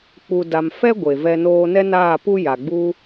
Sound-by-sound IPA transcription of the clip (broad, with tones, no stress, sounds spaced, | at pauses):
k͡p u˨ d a˨ m f ɛ˦ ɡʷ e˨ v ɛ˧ n oː˧ n ɛ˦ n aː˦˨ p u˦ j a˨ ɡ͡b u˦